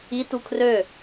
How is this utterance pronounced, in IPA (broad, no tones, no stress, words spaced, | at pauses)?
i tukʰrø